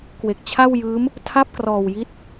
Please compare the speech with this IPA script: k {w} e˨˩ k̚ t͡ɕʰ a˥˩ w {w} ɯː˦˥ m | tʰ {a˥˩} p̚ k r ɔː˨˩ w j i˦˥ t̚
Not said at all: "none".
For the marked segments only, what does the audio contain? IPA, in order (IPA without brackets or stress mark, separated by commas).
w, j, a˥˩